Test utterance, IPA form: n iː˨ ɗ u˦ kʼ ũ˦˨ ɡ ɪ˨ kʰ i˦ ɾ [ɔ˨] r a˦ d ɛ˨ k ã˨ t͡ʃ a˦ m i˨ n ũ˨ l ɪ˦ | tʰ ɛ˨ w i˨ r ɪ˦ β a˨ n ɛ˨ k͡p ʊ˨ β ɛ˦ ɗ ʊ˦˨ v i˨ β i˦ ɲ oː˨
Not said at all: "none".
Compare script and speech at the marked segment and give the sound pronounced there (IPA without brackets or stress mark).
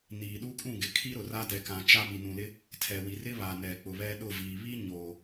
ʊ˨